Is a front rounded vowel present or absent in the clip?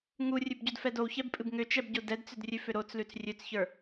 present